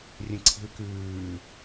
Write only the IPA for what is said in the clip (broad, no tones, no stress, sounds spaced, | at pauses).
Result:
rʲ ə̃ ǀʰ i̤ l k ʉː